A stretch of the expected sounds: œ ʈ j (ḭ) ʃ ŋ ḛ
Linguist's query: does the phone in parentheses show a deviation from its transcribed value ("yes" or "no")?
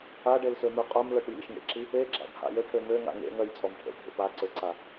no